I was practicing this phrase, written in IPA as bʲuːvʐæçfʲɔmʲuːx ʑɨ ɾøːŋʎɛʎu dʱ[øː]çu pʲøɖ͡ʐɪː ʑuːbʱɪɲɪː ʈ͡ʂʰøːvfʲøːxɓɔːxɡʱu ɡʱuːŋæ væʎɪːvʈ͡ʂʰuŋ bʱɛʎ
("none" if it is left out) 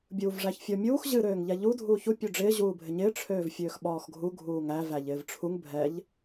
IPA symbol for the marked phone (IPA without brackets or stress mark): uː